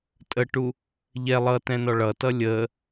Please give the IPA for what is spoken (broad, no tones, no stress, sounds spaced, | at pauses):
tʼ ə ʈ u | ʎ ɛ lˠ ʌ t ɛ̃ n ɔ ɭ ʌ t ʌ lʲ ə